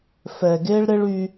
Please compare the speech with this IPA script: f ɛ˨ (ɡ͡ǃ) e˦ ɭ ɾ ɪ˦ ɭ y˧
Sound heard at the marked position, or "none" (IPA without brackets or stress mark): ɡ